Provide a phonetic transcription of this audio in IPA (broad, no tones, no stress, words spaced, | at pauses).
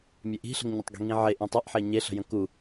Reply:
mʲeʔi̤ɬə̤ŋ ɲətˤɡi̤ŋĩʕe ʔĩtˤiʔħe ɲeɬə̤jə̃ ku